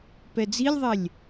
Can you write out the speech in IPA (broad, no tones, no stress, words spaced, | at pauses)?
pɛd͡zilʲðˤɛlʲ